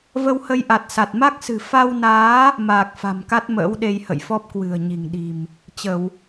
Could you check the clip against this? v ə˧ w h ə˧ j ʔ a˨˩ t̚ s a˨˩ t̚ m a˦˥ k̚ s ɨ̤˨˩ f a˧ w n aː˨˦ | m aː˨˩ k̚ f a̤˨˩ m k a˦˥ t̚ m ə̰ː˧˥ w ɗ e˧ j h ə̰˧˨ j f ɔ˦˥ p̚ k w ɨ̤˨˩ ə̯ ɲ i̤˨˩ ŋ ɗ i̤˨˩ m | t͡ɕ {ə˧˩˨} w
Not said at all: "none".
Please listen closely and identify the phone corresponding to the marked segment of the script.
ə˧˩˨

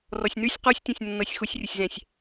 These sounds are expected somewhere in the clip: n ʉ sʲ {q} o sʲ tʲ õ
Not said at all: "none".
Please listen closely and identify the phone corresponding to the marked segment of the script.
q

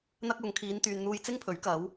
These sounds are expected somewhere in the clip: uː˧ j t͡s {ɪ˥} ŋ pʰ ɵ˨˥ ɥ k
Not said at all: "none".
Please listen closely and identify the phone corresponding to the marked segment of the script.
ɪ˥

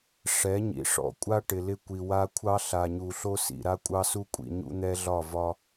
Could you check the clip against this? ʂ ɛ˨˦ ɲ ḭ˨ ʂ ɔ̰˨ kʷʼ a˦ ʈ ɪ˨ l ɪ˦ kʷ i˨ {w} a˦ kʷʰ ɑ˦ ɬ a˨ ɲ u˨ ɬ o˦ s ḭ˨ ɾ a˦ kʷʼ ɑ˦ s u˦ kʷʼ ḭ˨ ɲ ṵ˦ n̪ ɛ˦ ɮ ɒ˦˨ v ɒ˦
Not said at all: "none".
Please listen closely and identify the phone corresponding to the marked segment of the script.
w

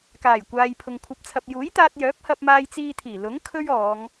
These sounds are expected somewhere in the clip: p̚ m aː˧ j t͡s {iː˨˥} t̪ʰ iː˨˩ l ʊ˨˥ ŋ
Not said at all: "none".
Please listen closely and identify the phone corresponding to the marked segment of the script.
iː˧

